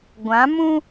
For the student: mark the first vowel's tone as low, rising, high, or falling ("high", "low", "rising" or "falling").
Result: rising